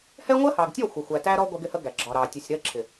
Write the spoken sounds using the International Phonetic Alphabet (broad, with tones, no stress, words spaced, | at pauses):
hɛ˦ŋʷɜ˦hɑ˨ɡtʲɔ˦˨ xʷʌ˨xʷæ˨ tæ˦ɾɔ˦ ɡʷɛ˦ɡɪ˦hə˦ ɡæ˨ɡ͡ǁɒ˨ɾɑ˨ tʲə˨sʲ ɾɜ˦ǁʰɪ˨